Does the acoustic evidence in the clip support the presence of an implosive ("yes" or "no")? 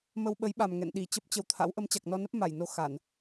yes